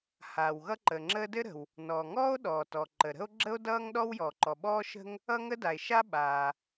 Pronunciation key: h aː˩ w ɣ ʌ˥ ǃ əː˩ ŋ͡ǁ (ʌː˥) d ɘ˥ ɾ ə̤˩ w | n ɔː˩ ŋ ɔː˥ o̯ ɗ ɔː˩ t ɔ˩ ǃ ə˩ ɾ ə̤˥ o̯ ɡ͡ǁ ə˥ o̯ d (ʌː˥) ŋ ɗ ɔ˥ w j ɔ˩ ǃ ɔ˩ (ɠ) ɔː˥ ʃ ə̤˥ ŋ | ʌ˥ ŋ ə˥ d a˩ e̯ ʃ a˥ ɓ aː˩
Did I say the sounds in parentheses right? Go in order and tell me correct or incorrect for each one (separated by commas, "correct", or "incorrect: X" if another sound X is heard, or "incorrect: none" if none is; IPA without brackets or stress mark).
incorrect: əː˥, correct, incorrect: ɓ